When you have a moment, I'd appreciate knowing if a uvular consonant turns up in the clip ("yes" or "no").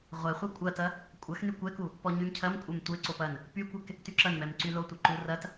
yes